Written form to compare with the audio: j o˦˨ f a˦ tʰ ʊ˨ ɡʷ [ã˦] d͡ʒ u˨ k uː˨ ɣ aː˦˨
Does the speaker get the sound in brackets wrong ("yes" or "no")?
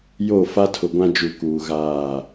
no